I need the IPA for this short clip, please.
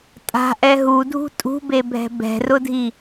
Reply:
tʼ a̤ ʔ ɛ ɦ u dʱ ṳ tʼ ṳ b e bʱ ɛ̤ b ɛ̤ r ʊ dʱ i

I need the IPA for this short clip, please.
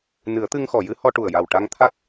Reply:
n ɨ˨˩˦ ə̯ t̪ ɨ˧ ŋ x ɔ˨˩˨ j ɨ˧˥ h ɔ˧ ʈ u˨˩ ə̯ j a˨˩ w ʈ a˧ ŋ t̪ʰ a˦˥ k̚

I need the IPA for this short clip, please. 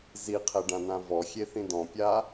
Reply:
z i qʰ ɛ ɖ ã n ã v ɔ xʲ e θ ĩ d ɔ̃ pʲ a

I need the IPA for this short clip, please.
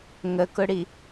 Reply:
ŋ ə k ʊ ɽ i

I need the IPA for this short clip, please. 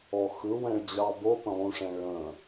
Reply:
ɔ x ɯ w ɛ̃ ɭ d͡ʑ ɑ b o p ə̃ lˠ ũ ʂ ɛ̃ ɭ ə̃

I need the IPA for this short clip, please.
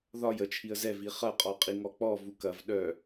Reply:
ð ɒ j ə t͡ʃʰ i ə̯ z ɛ v i χ ɐ qʼ ɔ qʼ i ŋ ɔ k͡p ɔ v u k ɐ v ɗ œ

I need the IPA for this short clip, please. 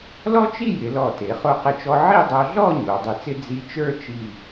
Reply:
l ɔ˥ t͡ʃ i˥˧ j ɪ˩˧ l ɔ˧˩ t e˩˧ χ o˧ q ɪ˧˩ t͡ʃ ɔ˧ ʕ i˥˧ dˤ o˧ ɮ ɔ˥˧ ɲ o˩˧ dˤ i˧˩ t͡s ɪ˥ d͡z i˧ t͡ʃ ə˞˥˧ t͡ʃ i˧˩

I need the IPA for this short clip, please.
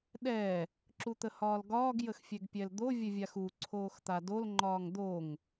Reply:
ɗ ɛ | ǁ u t̪ ə h ɒː l ɡ ɒː ɡ j ə x fʲ ɛ ɡ pʲ ɛ l d̪ o vʲ ə vʲ a x u ǀʰ oː x t̪ a d o l ŋ͡ǃ ɒː ŋ d̪ o ŋ

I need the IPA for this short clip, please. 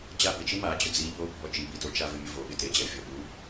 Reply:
d͡ʑ a b ɪ t͡ʃ i m a d͡ʑ ʊ d͡z i ʎ o bʱ ɔ t͡ʃ i b i t o t͡ʃ a v ɪ mʲ ʊ v o ɓ ɪ t e d͡ʑ ɛ fʲ ɔ ɓ u

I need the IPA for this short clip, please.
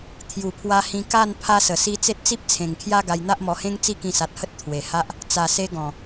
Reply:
t̪ʰ j u˨˩ pʰ w a˧ h ĩ˧ k a˥˧ n pʰ a˦ s ə˨˩ s i˦ t͡s e˦ t̚ t͡s i˦ p̚ t͡sʰ ẽ˨˩ ŋ kʰ j a˦ ɡ a˧ j n̪ a˦ ʔ m ɔ˧ h ẽ˦ ŋ t͡s i˦ k ĩ˧ s a˨ t̚ h ə˦ t̚ t̪ʰ w e˨˩ h a˦ ʔ | t͡s a˨˩ s e˧ ɡ ɔ̃˨˩

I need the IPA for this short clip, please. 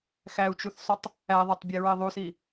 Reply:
x æ u̯ t͡ʃ u θ sˤ o tˤ | æ ðˤ æ tˤ bʲ e ɹ e ðˤ u s i

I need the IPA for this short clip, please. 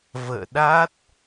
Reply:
v ə̰ː˧˨ ɗ a˦˥ t̚

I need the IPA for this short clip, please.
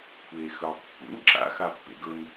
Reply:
kʷʰ eː x ɵː tˤ pː ṵ n ǁ a̰ x a pː ḛ ɡ ɵ n

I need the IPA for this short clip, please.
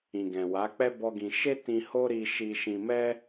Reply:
ĩ˨ ɡ ɛ̃˨ w a˨˦ k͡p ɛ˦ b ɔ˦ ɡ ĩ˧ ʃ e˦ t ĩ˧ h o˦ ɾ i˧ ʃ i˧ ʃ ĩ˧ m ɛ˦

